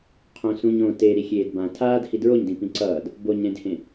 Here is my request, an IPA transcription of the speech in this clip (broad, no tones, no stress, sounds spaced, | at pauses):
qʰ õ s ũ ɲ õ t e ɾ i xʲ eː d b ã tʰ aː d h i d ɹ o ɲ d ĩ p ĩ ǀ ʌː d | b o ɲ ɾ ẽ d h ẽ